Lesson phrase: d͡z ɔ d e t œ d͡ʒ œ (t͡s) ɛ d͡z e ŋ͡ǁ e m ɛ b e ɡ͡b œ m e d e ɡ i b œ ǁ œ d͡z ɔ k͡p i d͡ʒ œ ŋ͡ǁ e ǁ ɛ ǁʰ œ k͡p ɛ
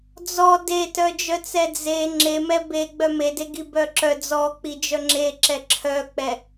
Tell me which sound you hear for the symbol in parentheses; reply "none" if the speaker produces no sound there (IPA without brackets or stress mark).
t͡s